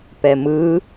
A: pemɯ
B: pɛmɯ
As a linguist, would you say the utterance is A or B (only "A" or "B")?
B